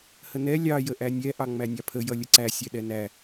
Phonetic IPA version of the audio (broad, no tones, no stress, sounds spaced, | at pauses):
h ə n ɛ lʲ ɑ j ə ʔ æ nʲ ɛ ʔ ɑ ŋ͡m æ nʲ ɑ pʰ ə j ʌ lʲ ə ǀ æ sʲ ɛ ɗ ɛ n æ